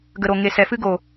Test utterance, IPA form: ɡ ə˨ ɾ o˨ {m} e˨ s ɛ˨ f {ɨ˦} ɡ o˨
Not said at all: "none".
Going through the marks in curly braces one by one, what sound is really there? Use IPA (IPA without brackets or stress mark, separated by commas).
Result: ŋ, ɨ˦